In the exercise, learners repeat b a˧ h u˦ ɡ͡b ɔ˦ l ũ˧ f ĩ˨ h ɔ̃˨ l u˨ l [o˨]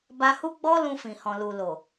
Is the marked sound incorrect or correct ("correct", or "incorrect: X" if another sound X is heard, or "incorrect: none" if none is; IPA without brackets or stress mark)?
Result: correct